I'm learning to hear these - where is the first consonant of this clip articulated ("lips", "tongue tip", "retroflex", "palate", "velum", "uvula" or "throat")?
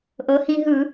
throat